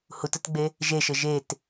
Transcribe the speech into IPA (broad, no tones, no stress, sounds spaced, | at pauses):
h u t ə t ɡ͡b e | ʒ e ʃ ə ʒ e t